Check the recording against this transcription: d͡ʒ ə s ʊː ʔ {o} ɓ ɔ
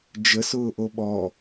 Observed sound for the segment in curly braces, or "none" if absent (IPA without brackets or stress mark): o